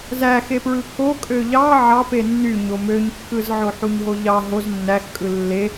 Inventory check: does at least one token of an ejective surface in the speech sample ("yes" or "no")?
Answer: yes